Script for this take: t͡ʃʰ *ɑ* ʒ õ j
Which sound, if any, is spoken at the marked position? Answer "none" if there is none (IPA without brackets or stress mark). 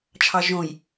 ɑ